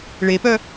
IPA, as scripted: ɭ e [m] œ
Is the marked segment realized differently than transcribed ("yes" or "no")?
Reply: yes